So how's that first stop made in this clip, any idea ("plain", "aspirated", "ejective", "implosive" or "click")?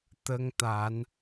plain